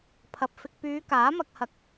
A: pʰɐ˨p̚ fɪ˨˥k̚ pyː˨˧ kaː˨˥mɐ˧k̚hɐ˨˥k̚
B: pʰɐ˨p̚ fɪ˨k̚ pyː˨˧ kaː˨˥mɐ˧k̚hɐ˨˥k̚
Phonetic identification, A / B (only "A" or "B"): B